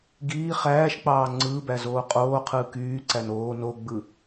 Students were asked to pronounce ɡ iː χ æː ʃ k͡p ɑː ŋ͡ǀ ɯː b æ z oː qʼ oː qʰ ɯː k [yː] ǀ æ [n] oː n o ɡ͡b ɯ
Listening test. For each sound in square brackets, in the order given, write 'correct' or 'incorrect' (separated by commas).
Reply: correct, correct